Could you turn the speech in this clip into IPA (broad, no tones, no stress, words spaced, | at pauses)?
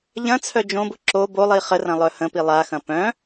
ʎɐ̃t͡sʰœ d͡ʒõbʊ ǁo bolˠi χərɐ̃lˠœ hə̃pi lˠaxɐ̃ pœ̃